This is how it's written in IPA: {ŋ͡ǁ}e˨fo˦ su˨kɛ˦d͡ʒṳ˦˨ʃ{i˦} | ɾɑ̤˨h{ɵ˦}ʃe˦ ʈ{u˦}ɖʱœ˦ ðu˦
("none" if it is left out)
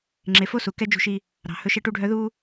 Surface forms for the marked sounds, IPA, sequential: ŋ͡ǁ, i˦, ɵ˦, u˦

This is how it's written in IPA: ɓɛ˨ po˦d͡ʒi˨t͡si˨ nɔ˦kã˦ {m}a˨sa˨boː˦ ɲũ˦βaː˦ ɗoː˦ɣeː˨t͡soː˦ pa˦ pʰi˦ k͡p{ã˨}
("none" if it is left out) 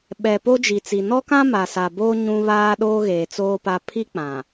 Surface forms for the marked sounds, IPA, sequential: m, ã˨

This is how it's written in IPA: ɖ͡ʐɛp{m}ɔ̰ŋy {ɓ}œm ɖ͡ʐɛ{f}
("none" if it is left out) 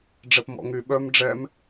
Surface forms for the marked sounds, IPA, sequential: m, ɓ, m

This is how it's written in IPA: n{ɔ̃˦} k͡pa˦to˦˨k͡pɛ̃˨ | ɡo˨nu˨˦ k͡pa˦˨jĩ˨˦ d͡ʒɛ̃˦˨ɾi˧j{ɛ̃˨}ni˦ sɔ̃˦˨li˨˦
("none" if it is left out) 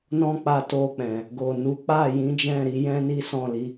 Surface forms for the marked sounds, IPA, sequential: ɔ̃˦, ɛ̃˦

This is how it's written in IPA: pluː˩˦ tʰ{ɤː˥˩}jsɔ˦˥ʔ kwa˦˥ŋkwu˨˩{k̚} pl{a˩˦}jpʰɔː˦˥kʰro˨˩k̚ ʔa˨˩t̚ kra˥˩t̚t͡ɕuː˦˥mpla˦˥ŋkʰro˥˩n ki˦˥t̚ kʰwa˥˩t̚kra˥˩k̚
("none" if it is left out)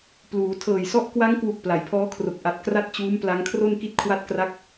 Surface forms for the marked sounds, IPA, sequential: ɤː˨˩, k̚, a˩˦

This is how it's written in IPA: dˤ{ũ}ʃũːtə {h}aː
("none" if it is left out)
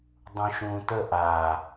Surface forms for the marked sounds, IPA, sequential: ũ, ʔ

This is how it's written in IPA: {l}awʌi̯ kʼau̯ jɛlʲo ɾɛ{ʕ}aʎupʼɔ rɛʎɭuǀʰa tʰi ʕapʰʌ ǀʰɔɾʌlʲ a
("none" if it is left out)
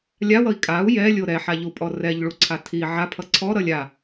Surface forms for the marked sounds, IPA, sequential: lʲ, ħ

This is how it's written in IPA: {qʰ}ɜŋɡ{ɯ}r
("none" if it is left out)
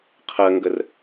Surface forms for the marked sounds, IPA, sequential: qʰ, ə

